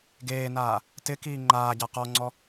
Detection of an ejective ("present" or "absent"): absent